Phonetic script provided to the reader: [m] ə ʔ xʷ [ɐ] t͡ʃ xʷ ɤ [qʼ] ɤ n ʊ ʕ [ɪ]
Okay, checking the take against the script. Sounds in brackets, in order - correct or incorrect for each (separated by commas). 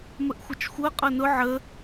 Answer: correct, correct, correct, incorrect